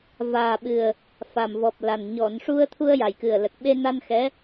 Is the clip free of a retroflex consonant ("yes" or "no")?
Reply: no